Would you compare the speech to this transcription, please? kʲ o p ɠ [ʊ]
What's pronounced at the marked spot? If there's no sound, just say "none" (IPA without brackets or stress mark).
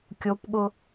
ʊ